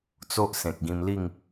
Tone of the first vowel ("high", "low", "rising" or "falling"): high